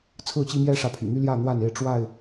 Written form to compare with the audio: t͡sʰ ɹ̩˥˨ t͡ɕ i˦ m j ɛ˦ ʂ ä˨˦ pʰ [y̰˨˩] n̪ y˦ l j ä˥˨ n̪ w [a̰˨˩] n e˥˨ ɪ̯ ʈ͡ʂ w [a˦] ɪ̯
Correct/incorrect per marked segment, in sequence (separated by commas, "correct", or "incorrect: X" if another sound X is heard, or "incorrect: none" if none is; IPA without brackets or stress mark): correct, incorrect: a˥˨, incorrect: a˥˨